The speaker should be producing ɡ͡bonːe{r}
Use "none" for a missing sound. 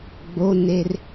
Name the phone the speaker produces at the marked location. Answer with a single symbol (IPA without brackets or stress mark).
r